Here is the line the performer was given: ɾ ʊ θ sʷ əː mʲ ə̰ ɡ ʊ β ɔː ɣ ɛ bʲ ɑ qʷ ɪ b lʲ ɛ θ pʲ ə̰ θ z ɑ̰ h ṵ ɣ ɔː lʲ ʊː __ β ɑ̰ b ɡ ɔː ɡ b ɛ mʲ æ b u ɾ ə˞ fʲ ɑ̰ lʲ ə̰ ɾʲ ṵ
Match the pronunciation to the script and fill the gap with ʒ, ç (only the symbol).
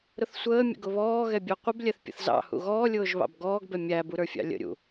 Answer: ʒ